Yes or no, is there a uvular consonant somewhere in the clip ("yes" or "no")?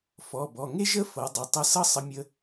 no